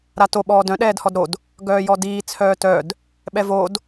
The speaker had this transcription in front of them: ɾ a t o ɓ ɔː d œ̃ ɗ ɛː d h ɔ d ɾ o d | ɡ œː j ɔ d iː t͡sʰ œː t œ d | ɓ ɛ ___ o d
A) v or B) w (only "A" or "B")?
A